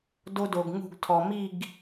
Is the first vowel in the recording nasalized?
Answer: no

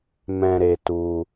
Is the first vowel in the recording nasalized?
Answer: yes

